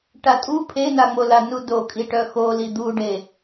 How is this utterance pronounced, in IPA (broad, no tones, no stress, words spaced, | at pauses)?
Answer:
ʈatʼu pʰenaŋ͡mola nudokʼi ʈœxoli d̪uɖe